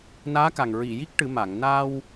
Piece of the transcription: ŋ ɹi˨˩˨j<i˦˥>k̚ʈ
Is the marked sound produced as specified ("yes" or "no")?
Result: yes